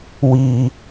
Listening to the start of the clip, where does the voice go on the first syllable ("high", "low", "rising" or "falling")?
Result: high